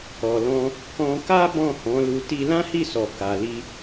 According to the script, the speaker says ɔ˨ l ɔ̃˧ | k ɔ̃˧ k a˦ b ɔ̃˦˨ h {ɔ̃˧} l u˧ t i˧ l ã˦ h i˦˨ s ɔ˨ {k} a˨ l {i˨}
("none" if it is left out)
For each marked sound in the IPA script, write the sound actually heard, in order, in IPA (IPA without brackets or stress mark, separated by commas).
ɔ̃˨˦, k, i˧